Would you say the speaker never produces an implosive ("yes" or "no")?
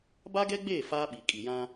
no